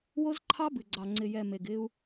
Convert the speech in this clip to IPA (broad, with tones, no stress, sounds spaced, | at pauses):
w o˦ z ǃʰ ɑ˦ b ɨ˨ ɡ͡ǀ ɑ˨ ŋ͡ǀ ɪ˨ j ɛ˨ m e˨ ɡ ɪ˦ u̯